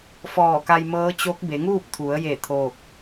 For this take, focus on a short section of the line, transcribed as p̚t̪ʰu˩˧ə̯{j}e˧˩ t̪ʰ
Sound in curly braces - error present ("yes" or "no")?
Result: no